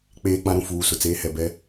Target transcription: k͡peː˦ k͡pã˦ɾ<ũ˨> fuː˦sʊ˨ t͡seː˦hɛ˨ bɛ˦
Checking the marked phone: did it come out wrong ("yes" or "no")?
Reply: no